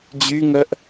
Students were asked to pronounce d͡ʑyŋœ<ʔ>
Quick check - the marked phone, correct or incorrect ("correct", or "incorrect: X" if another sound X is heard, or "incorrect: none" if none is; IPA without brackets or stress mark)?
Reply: correct